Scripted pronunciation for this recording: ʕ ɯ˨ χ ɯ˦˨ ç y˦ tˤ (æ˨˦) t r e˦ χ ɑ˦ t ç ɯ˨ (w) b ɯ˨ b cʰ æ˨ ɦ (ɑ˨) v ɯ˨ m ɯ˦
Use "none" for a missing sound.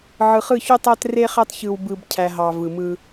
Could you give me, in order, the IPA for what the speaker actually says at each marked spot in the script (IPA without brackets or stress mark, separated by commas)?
æ˦, w, ɑ˨